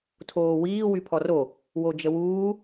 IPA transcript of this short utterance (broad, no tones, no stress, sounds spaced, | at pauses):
tʰ oː w iː w y pʰ ɔ r o | w o d͡ʒ ə w uː